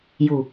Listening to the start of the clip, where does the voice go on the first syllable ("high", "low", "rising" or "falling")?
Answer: low